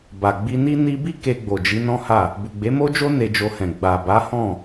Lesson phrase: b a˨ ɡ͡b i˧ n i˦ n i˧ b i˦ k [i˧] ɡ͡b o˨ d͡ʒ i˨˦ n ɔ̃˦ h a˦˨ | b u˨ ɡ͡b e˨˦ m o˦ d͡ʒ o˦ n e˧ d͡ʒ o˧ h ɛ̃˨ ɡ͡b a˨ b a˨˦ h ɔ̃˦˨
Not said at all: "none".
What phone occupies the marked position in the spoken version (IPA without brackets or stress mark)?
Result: e˧